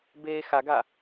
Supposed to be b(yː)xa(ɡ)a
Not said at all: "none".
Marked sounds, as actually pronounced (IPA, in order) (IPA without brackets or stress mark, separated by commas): eː, ɡ